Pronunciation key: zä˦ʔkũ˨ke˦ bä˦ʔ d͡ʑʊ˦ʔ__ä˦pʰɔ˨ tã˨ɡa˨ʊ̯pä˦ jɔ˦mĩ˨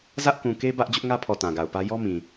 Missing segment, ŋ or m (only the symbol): ŋ